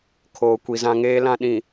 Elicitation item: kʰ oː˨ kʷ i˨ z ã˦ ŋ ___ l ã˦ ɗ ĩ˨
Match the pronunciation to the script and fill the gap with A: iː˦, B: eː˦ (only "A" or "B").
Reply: B